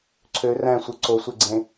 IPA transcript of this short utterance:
ǀʰ ø r æ̃ sʷ ɯ ǀ o sʷ e ɡ͡ǀ ẽ

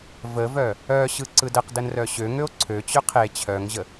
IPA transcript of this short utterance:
v ə v œ | œ ɕ ɯ ǀ ɯ d ə q d ə n r œ ɕ ø ŋ ø o̯ ǀʰ ø t͡ɕ ø qʰ e t͡ɕʰ œ ŋ ʑ ə

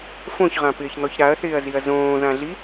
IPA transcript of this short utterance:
f õ ç ʁ ã p ɪː ç n̪ ɔ ç ɾ a ɐ̯ θ ɪː ɐ̯ z i ɐ̯ z õː ð ã ɮ i

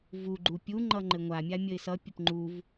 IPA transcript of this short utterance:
v u ɡ͡ǃ u pʲ u ŋ͡ǃ ʌ ŋ͡ǃ ɘ ŋʷ a mʲ a mʲ ə ɪ̯ s ʌ pʲ ə p ŋ͡ǃ u v

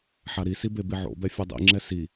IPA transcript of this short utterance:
ħ a ɾ i s i b e b i ʕ o̰ b ɛ fʲ ɛ dˤ ḭ ŋ͡ǁ ɛ s i

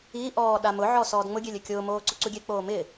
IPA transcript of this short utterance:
i ʔ ɔː ɗ a m ʊ ʕ ɔ s ɔː d ŋ͡m ʊ ɡʲ e lʲ ɪ kʲ ʊː m oː ǀ ʊ ǀ u ɡʲ e k͡p oː m ɪː

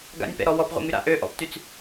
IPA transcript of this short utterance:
ɡ a̰ nʲ p ɛ̰ ɾ ɔ w ɔ p ʁʷ ɛ̰ ŋ y ɾ a̰ ʔ ø ʔ ɔ̰ p t y t͡s

